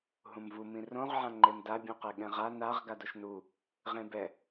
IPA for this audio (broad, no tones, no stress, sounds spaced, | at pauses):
ɦ ũ m v u m ĩ r õ ʁ ʕ ã ŋ͡ǃ e m d a bʲ ũ q e ɠ ɛ̃ ʁ a n a ʁ ɡ a d o ʃ n u | ʁ ẽ b ɛ